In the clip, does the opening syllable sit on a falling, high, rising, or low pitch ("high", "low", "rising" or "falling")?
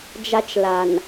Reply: high